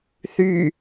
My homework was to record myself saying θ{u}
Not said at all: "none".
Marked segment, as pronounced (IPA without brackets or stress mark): y